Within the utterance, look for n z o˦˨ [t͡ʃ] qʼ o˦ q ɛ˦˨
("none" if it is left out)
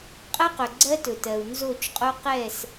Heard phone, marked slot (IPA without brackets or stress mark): t͡ʃ